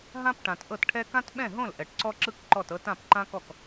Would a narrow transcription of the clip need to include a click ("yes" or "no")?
yes